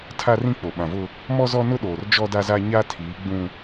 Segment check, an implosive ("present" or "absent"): present